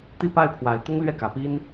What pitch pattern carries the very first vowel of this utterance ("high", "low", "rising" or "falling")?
falling